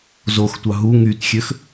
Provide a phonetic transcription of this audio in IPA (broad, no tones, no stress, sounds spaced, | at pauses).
z o x tʷ ɑ ɦ u ŋ y t xʲ ø x